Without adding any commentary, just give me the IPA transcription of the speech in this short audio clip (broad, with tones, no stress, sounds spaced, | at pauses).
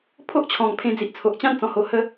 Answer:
pʰ o˦ ʔ t͡ɕʰ ɔ̃˨˩ ŋ pʰ ẽ˧ d͡z i˨ ʔ t͡sʰ o˨ ʔ t͡ɕ ã˥˧ n t͡s ɔ̃˨˩ h o˨˩ h ə˧